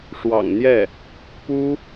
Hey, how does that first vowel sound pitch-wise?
low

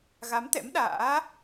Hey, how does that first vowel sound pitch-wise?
rising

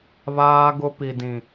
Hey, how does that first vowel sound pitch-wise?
high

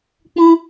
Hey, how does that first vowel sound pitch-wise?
high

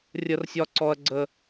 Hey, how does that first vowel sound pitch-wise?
high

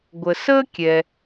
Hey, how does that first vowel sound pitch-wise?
low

